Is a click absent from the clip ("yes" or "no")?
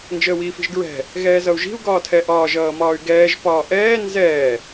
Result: yes